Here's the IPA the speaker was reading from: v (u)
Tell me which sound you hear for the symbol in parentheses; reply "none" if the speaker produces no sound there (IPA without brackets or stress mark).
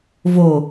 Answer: o